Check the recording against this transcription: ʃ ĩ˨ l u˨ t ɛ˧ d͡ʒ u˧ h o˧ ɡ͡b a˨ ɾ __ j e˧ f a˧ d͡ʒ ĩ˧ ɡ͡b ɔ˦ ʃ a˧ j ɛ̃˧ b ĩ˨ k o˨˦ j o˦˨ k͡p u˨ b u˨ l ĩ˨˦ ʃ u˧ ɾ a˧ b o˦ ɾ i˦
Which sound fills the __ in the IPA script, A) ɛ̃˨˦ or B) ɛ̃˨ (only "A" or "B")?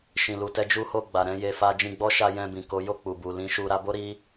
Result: A